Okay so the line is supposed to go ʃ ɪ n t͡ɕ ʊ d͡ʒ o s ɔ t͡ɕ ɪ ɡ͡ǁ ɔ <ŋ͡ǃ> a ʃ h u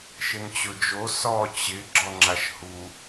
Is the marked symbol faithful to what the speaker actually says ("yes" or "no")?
no